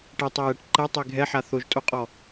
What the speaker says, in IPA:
ʈ ɛ tˤ ɛ j ɛ ʈ ǃ ɛ tˤ ɛ ɡʱ ɛ ħ a θ o ʒ tʼ o qʼ ɔ

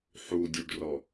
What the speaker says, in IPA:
ħ u dʲ u ɖ r ɔ

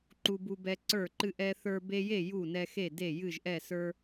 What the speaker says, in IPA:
ǃ u˦ b u˦ b ɛ˦ ǀ ə˞˥˨ ǃ ɨ˦ ʔ ɛ˦ θ ə˞˦ b e˦ j e˥˨ j u˥˨ n ɛ˦ x e˥˨ d e˥˨ j ɨ˥˨ ʒ ʔ ɛ˥˨ s ə˞˦

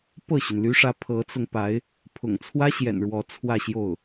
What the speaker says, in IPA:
p ɤ˥˩ ɕ y˩ n l y˧˥ ʂ ä˧˥ pʰ ɤ˧˥ t͡s ʊ˧ ŋ p a˧˥ ɪ̯ | pʰ ʊ̰˨˩ ŋ t͡sʰ w ä˥ ɕ j ɛ̰˨˩ n ɻ w ɔ˧˥ t͡sʰ w ä˥˧ ɕ j o˥˩ ʊ̯

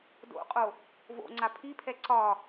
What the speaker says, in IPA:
d o̰ qʼ o | v o̰ ŋ͡ǀ a pʰ i pʰ ɛ ǀ ɒ

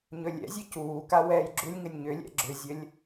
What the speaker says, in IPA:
ɲ ɵ lʲ ɛ̰ zʲ ɘ c uː k a w ɛː j ɡ͡ǁ u lʲ ŋ ɘ nʲ ɲ ʏ lʲ ɛ̰ ɡ͡ǁ ʏ zʲ ə lʲ

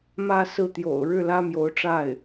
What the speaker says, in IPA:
m ä˥˧ s ɹ̩˥˩ t̪ j o̰˨˩ ʊ̯ ɻ ɻ̩˥˩ l ä˥ m j o˧˥ ʊ̯ ʈ͡ʂ a˥˩ ɪ̯

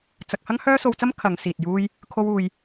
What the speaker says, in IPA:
t͡s ɐ˧ k̚ h ɐ˥ ŋ h œː˥ s o˧ w t͡s ɐ˥ m kʰ ɐ˨˧ ŋ s iː˨ t̚ j uː˥ j | kʰ o˥ w uː˧ j

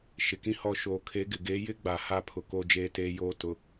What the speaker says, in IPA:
ʃ ɪ˨ k ĩ˦ h ɔ˦˨ ʃ oː˨ kʰ e˨˦ ɡ ɪ˨ ɡ e˨˦ j ɪ˦ ɡ͡b a˨ h a˦˨ pʰ ʊ˨ k o˦ d͡ʒ eː˦ t eː˦ j oː˦ t ʊ˨

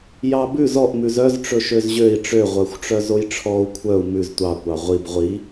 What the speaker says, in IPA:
j ɑ b ʉ z ɔ ʔ m ʉ z œ z ʈ͡ʂ ɵ ʃ ø z ʑ ø i̯ ʈ͡ʂ ø ʁʷ œ xʷ ʈ͡ʂ œ z o j ʈ͡ʂʰ ɔ u̯ kʷʰ œ u̯ m ʉ z tʷ ɑ kʷ ɑ ʁʷ i b ʁʷ i

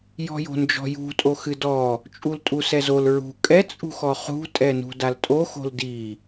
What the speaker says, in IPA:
j ɔ̤ j o̤ n d͡ʒ ɔ̤ j ṳ tʼ o x ɨ d ɔ | t͡ʃʼ u l tʼ u s ɛ z o l ɹ ṳ kʼ ɛ t͡sʼ ṳ x ɔ χ ṳ tʼ ɛ n ṳ d a l tʼ o x o̤ l d i

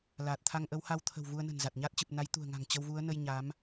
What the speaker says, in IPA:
l aː˨˩ t̚ t̪ʰ a˧ ŋ ʔ ə˨˦ w h a˧ w t̪ʰ ə̤˨˩ w v u˧ ə̯ n ə̤˨˩ n z a˨˩ t̚ ɲ aː˦˥ t̚ t͡ɕ ɨ˨˩ p̚ n a˨˦ j t̪ ṳ˨˩ ə̯ ŋ a̤˨˩ ŋ t͡ɕ ə˧ w v u˨˦ ə̯ n ə˧ j ɲ a˨˦ m

